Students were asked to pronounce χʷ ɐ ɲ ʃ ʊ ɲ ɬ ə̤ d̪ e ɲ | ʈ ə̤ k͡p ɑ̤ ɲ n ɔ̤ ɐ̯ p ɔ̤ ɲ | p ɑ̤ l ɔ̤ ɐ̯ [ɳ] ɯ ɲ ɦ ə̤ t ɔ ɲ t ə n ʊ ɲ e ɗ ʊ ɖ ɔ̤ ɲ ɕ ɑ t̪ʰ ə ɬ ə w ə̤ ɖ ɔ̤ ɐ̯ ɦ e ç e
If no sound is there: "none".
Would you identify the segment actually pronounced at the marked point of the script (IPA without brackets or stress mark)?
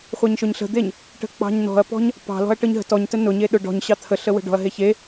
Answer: ʈ